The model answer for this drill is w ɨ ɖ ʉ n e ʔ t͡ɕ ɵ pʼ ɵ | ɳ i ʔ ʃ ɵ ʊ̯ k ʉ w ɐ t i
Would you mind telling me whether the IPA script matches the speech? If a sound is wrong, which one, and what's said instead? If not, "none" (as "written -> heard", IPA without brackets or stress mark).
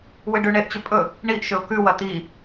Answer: n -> ɳ